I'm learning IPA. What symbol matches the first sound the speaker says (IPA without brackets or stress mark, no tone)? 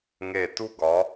ŋ